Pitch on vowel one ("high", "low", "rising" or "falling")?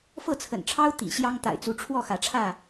falling